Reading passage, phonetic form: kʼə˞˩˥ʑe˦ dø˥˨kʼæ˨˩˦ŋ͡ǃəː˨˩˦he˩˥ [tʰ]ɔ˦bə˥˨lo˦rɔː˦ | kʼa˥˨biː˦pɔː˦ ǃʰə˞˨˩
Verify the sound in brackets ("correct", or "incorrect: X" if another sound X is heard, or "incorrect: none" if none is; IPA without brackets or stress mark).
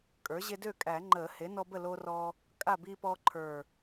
incorrect: n